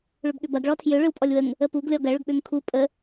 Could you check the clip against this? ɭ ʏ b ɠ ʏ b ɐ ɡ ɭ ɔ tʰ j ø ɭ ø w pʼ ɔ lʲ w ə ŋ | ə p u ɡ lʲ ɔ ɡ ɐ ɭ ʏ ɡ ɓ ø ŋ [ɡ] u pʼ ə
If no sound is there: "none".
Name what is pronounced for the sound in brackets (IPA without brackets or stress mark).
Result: kʰ